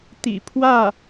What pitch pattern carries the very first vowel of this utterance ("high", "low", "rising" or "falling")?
low